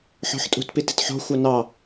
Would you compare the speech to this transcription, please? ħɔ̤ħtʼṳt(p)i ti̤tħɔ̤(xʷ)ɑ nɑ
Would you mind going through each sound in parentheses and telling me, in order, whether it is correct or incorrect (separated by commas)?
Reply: correct, correct